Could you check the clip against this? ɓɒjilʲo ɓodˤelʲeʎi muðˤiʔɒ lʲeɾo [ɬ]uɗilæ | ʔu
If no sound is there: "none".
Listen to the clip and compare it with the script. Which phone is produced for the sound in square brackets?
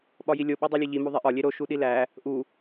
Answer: ʃ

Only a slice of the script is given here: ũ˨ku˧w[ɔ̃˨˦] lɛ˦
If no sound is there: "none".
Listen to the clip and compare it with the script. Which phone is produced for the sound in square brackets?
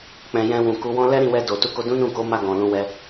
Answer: ɔ̃˦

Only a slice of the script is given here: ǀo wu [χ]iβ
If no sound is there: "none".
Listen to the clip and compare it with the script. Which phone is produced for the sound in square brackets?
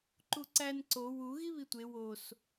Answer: ɣ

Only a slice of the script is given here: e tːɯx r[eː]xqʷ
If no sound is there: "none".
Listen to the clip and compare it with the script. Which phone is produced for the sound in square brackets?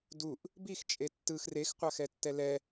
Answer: e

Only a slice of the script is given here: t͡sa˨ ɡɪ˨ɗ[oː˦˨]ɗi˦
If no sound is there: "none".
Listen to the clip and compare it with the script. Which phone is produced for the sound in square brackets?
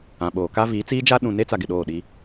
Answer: oː˦˨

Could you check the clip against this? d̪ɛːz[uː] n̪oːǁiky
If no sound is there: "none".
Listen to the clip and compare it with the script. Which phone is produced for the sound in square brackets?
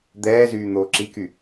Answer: yː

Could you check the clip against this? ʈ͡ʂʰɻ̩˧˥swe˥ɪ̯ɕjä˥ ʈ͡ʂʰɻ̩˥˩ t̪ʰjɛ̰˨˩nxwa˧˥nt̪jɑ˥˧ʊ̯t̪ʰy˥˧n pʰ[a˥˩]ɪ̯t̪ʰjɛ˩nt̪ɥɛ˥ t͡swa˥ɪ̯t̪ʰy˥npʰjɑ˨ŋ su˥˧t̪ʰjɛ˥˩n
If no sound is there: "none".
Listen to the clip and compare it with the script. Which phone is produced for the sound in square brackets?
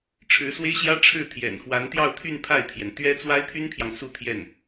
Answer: a˥˩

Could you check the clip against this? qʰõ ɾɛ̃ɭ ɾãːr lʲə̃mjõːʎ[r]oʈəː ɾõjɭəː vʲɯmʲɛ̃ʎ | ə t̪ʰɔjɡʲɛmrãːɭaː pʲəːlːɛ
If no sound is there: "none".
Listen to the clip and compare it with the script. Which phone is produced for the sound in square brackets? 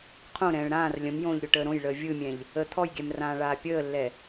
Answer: ɾʲ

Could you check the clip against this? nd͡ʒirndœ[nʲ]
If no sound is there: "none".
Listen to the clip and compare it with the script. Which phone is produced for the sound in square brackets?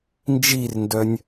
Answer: nʲ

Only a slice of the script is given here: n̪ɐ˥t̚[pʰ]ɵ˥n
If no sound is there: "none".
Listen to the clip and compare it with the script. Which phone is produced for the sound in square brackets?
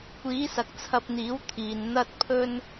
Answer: pʰ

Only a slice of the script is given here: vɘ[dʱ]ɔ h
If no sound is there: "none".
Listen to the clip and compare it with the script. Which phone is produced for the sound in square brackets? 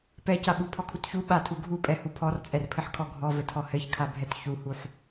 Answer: tʰ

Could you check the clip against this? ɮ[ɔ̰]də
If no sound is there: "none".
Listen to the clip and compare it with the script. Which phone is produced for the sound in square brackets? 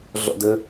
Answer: ɔ̰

